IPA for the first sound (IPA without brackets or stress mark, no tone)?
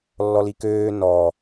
lː